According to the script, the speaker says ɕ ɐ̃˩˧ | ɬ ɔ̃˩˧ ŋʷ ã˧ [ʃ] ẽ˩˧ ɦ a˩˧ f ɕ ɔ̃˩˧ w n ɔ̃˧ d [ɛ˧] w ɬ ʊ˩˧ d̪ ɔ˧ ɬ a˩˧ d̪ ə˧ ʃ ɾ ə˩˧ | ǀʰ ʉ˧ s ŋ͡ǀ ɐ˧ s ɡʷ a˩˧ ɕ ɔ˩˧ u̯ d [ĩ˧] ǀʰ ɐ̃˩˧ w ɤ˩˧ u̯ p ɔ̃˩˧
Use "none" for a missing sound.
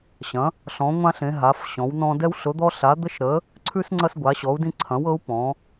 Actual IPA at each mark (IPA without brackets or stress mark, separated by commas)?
ɬ, ɛ˧, ĩ˧